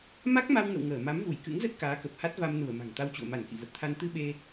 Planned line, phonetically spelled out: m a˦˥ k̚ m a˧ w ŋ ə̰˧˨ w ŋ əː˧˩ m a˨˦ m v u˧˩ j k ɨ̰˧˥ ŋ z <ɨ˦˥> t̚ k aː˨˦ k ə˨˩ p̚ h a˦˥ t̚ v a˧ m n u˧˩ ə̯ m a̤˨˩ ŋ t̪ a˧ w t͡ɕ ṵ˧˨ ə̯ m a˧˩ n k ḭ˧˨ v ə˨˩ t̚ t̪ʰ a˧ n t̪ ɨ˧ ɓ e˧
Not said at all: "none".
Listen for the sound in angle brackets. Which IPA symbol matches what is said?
ə˦˥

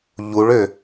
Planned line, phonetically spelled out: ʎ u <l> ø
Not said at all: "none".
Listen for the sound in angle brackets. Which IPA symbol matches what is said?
ɭ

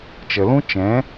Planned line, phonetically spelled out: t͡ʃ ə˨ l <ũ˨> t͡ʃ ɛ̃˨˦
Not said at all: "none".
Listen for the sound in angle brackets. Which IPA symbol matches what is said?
ũ˦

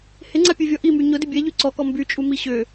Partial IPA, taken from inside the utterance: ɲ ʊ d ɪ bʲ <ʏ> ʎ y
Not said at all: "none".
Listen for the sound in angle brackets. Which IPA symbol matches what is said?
ɛ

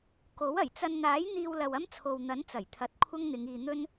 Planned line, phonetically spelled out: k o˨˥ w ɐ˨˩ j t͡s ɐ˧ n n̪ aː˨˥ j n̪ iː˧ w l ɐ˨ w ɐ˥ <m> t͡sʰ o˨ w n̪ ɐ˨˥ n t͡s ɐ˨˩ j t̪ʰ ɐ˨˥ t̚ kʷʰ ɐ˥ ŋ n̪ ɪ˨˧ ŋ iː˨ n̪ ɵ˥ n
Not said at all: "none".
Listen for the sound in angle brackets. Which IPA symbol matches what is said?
m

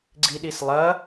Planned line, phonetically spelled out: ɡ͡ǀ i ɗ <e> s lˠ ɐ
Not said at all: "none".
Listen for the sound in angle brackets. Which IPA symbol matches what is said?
i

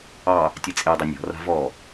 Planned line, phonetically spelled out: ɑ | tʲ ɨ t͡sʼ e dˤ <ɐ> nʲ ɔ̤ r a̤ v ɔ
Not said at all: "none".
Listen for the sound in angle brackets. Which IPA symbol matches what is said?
ɐ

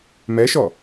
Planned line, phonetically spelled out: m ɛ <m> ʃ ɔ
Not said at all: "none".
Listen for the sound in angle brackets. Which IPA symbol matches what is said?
none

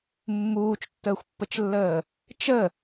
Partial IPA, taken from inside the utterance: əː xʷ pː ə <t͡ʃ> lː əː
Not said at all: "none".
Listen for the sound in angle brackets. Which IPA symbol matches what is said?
t͡ʃ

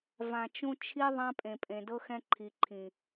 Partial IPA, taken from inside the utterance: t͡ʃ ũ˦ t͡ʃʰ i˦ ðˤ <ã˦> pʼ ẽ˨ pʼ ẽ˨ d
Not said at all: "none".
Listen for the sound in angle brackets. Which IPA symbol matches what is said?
ã˦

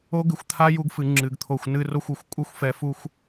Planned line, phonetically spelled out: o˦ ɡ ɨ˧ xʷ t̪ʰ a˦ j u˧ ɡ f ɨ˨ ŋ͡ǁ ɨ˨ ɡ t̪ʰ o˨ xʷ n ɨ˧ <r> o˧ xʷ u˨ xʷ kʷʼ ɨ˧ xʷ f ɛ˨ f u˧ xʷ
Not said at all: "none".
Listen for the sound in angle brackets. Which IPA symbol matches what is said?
r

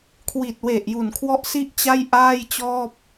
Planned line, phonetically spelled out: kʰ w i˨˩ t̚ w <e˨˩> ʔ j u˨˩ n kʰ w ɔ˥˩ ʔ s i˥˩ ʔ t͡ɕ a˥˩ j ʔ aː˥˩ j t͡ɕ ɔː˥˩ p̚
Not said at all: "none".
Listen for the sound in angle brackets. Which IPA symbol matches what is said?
e˨˩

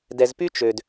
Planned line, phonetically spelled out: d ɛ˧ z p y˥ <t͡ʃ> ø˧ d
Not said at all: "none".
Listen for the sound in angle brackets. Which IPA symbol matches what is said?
t͡ʃ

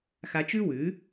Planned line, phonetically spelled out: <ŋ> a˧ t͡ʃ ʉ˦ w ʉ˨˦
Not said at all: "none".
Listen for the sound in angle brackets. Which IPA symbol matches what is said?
x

